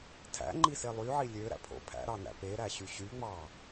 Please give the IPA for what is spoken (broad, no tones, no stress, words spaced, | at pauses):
tʰæ̰ŋ͡ǃise lˠyʕi lʲøɾæ̰pʰo̰ pʰæ̰ɾɑnæ̰ peɾæɕy ɕyŋ͡mɑ